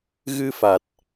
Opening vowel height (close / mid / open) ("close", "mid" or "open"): close